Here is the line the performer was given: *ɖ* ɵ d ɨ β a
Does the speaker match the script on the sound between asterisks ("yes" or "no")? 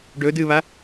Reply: yes